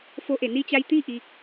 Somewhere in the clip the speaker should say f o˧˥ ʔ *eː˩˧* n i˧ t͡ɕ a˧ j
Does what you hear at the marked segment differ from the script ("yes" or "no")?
yes